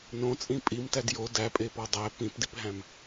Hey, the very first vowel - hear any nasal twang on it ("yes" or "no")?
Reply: yes